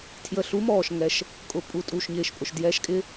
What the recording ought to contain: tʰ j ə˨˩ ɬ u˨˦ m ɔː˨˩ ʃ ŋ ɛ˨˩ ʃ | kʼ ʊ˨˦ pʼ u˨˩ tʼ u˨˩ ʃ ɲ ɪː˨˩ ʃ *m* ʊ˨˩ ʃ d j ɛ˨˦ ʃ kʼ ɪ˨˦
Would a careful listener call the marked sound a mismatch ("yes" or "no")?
yes